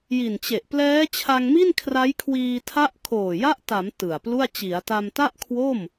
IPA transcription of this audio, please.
j i˨˩ n t͡ɕ e˨˩ ʔ p l ɛː˦˥ t͡ɕʰ a˧ ŋ m i˥˩ n kʰ r a˦˥ j kʰ w iː˧ tʰ a˦˥ ʔ kʰ oː˨˩ j a˦˥ ʔ t a˩˦ m t ɯ˨˩ a̯ p l u˥˩ a̯ t͡ɕ i˩˦ a̯ t a˧ m t a˥˩ ʔ kʰ w o˥˩ m

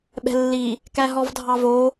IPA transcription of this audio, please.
ɓ ɛ̤ lː i | k æ ɦ ɔ v dʱ ɑ v o

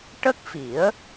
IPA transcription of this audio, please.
ʈ ə˦˥ k̚ f i˨˩˦ ə̯

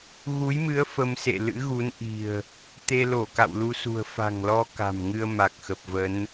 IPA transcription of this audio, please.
ɣ u˨˦ j m ɨ˨˦ ə̯ f ə˧ m s ḛ˧˨ l ɨ̰˧˥ ɣ u˨˦ n ʔ i̤˨˩ ə̯ | t̪ e˧ l o˧˩ k a̰˧˨ w l u˧ s ṳ˨˩ ə̯ f a̤˨˩ ŋ l ɔ˧ k a̤˨˩ m ŋ ɨ˧ ə̯ m a˨˩ k̚ x ə˨˩ p̚ v ə˨˦ n

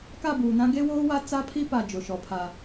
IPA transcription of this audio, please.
k a˦˨ b uː˨ n ã˦ ɡ e˦ w oː˦ w a˦ t͡s a˦ pʰ i˦ p a˨ d͡ʒ ʊ˨˦ ʃ ɔ˨ pʰ a˦

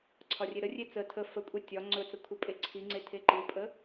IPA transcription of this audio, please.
ǀʰ ɒ rʲ e ɾ ə rʲ e t͡s ə tʰ ə f ə kʷʼ e tʲ ɒ ŋ͡ǀ ɵ t͡s ə kʷʰ ə pʼ e ǀʰ i ŋ͡ǀ e tʰ e ǃ i pʼ ə

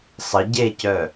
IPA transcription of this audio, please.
sˤ ə ɟ e c œ

